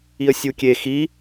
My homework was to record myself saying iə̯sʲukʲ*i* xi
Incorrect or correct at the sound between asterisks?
incorrect: e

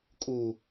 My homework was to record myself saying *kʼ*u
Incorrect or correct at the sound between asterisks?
correct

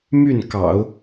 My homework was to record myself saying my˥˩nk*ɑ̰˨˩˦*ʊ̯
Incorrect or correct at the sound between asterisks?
correct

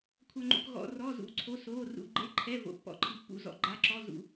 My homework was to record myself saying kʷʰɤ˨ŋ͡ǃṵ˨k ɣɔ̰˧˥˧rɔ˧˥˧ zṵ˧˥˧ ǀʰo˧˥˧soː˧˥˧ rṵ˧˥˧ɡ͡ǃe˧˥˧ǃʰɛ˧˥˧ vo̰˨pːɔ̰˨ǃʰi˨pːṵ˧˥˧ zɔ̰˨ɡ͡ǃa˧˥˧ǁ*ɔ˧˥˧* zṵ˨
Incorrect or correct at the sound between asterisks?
correct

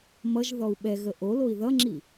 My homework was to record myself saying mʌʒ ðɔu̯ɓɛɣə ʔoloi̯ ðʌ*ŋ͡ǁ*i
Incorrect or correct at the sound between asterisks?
correct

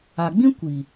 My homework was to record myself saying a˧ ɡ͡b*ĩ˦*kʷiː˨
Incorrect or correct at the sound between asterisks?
correct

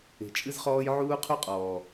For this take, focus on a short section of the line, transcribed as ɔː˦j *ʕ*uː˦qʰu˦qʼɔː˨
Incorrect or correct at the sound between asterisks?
correct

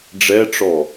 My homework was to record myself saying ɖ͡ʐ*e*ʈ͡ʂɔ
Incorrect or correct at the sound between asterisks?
incorrect: ɛ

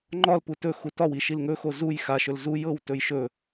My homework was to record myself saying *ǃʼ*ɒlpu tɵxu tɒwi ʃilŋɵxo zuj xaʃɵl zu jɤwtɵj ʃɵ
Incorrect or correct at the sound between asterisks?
incorrect: ŋ͡ǃ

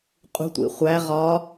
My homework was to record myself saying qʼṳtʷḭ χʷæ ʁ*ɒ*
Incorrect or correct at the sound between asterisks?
correct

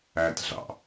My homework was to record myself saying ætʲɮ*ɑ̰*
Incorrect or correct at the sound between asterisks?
correct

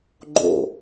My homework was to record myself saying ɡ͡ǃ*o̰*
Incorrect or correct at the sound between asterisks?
correct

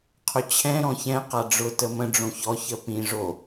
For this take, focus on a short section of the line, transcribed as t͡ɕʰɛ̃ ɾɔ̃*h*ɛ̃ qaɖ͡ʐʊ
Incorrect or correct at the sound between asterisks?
incorrect: ç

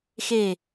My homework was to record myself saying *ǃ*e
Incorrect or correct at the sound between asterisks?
incorrect: x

